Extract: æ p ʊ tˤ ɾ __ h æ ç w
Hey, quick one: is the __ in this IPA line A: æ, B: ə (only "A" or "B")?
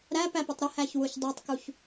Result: B